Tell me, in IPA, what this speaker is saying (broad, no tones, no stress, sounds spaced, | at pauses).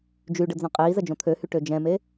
d͡ʒ y ɖ ə d͡z œ̃ qʼ iː z ə d͡ʒ õ t̪ʰ ø h y ʈ ø d͡ʒ ɛ̃ m e